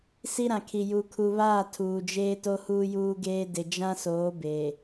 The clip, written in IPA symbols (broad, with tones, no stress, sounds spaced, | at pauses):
s i˦ ɾ ã˨ kʰ i˨ j u˨ kʰ u˨ β aː˦˨ tʰ uː˨ d͡ʒ eː˦ t o˦ h uː˦ j uː˦ ɡ eː˦ d ɪ˨ d͡ʒ ã˦ s oː˨˦ b eː˨